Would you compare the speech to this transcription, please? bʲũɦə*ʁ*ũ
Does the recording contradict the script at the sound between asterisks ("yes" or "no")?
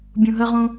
no